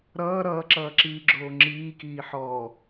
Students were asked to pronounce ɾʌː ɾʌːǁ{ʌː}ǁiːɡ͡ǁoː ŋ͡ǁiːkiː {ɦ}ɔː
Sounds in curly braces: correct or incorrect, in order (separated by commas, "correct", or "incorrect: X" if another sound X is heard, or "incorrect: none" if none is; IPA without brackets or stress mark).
correct, incorrect: ħ